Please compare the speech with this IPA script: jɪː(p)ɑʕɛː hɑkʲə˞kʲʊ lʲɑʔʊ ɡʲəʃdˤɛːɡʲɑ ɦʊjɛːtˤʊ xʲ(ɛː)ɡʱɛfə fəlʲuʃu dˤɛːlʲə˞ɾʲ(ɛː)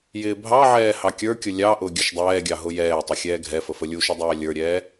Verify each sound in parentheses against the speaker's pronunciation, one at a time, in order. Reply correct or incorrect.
incorrect: bʱ, correct, correct

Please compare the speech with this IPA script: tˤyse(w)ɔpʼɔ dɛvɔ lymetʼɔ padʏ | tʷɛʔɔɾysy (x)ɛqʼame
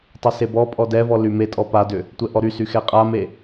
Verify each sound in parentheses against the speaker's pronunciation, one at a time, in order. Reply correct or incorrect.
incorrect: b, correct

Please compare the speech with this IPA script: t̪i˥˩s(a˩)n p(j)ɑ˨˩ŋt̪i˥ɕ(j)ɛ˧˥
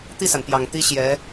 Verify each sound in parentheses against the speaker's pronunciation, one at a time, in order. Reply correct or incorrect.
correct, correct, correct

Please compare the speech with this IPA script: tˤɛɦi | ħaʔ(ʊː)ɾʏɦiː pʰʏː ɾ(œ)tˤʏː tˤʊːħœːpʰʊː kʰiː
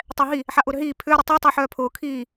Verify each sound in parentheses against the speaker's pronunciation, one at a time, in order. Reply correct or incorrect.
correct, correct

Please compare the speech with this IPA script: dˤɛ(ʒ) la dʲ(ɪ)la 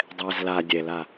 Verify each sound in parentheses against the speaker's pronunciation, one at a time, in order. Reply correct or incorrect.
incorrect: z, incorrect: ɛ

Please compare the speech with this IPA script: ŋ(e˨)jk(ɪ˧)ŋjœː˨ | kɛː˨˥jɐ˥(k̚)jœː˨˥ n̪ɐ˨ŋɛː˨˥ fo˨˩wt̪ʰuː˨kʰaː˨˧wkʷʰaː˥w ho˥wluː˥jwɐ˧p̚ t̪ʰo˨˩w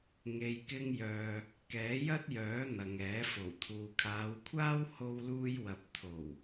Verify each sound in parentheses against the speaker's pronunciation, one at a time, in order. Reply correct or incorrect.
correct, correct, incorrect: t̚

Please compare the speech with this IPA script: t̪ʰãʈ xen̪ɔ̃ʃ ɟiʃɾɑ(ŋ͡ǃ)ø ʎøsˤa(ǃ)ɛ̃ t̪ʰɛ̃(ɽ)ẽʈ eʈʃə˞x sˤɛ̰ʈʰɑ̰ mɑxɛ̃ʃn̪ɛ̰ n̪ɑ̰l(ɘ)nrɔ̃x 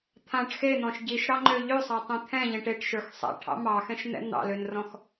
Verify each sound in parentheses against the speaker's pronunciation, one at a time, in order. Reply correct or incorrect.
correct, incorrect: tˤ, incorrect: ʎ, incorrect: ø

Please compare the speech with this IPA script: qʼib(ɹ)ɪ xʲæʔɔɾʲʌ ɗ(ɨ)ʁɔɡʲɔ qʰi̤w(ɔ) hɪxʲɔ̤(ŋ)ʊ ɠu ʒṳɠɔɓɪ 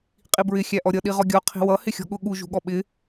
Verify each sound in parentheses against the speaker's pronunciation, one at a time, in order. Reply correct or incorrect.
correct, incorrect: i, incorrect: ʌ, incorrect: ɠ

